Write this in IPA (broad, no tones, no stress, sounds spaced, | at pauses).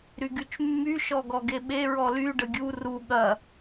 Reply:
ɾ y ɡ y t͡ʃ mː y ʃ ɔ ɡ ɔ ɡ e ɓ e ɹ ɔ l y ɖ ə ɡʲ u r u ɠ ɐ